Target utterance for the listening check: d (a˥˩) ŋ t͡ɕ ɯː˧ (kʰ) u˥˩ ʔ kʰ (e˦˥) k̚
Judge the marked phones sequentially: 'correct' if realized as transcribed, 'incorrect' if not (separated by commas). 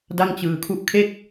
correct, correct, incorrect